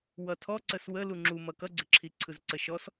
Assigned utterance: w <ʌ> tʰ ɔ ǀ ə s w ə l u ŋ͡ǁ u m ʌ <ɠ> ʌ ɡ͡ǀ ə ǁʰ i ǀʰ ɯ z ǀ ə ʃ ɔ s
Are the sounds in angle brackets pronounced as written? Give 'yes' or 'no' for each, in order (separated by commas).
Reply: yes, no